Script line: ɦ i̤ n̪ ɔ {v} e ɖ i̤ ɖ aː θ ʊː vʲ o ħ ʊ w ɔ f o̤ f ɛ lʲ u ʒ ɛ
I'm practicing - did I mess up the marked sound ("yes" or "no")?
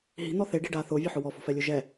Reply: yes